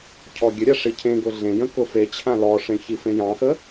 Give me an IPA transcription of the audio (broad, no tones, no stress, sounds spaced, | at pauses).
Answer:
cʰ ɔ ɡʲ ə ɾʲ a ʂ i cʰ ẽ ɡ ʊ ɮ ẽ j ə̃ k ʊ f e t͡ɕʰ ã l ɔ ʂ ẽ ç i f ẽ j ɑ̃ x ə